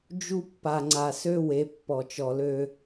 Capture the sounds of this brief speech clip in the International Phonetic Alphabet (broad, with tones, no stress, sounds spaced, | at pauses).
d͡ʒ u˦ pː a˨ ŋ͡ǀ a˨ s ø˦ w e˨˦ pː ɔ˨ t͡ʃ ɔ˨ l ø˦